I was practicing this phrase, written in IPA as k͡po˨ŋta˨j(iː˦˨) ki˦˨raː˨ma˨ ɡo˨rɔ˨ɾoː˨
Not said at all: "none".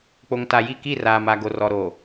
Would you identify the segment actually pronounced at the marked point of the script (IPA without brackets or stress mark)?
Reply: i˦˨